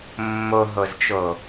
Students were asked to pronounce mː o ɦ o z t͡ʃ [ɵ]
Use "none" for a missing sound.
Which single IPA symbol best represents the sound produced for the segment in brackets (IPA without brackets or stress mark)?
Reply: o